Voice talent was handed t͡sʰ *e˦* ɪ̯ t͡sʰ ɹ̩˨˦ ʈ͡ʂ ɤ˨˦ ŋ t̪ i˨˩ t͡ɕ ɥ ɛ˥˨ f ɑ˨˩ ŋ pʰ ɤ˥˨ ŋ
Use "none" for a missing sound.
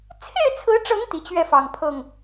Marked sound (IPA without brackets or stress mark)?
e˥˨